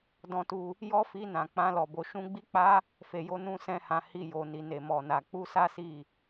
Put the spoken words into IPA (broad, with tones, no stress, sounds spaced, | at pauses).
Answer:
d ɔ̃˧ t u˧ | j ɔ˦ f i˧ n ã˨ k͡p ã˧ l ɔ˨ b o˨ ʃ ũ˧ ɡ͡b i˦ k͡p a˦ | f e˨ j o˧ n ũ˧ s ɛ̃˦ h ã˧ h i˧ j o˨ n i˨ n e˨ m ɔ˨ n a˨ k͡p u˧ s a˦ s i˦˨